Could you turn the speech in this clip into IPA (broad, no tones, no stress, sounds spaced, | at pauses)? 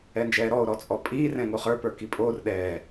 ɛ n d͡ʒ ɛː ɾ ɔ o̯ ɾ ɔ t͡sʼ ɔ pʼ iː r ɛ̃ ŋ o χ ə˞ p ə˞ k i pʼ oː r ɗ ɛː